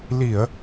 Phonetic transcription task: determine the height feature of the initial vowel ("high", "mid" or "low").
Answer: high